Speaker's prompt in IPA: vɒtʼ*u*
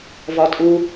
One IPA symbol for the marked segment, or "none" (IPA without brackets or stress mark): u